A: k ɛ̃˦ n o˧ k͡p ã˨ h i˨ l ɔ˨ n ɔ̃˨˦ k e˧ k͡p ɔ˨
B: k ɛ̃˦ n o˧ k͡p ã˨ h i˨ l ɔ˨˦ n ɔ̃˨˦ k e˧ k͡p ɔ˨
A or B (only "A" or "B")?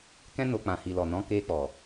A